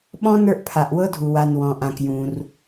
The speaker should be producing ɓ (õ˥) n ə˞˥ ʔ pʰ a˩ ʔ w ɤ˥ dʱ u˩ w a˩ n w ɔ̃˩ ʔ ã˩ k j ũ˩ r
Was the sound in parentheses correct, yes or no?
no